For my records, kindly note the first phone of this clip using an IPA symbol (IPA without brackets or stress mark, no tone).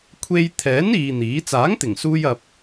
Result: kʷʰ